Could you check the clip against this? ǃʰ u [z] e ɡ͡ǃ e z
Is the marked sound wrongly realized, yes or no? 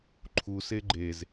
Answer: yes